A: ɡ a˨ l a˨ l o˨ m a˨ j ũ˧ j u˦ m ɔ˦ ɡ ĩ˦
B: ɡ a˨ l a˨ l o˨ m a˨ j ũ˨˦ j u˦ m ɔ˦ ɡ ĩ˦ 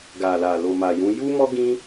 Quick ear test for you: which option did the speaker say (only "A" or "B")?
B